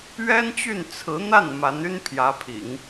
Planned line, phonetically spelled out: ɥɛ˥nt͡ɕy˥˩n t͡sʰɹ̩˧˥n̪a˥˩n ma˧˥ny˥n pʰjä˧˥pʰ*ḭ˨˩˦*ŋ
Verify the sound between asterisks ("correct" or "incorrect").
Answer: correct